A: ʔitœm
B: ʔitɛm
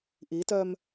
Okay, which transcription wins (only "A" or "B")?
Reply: A